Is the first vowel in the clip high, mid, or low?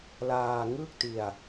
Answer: low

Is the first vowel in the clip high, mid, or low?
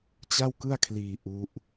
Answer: low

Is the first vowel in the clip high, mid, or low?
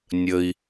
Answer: mid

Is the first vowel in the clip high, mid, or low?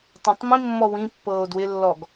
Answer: low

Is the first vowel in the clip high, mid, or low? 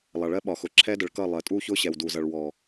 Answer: low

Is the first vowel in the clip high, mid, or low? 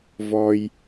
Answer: mid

